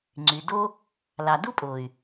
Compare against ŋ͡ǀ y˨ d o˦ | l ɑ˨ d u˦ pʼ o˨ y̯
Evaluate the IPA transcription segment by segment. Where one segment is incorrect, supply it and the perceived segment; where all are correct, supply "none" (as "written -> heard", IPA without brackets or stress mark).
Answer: none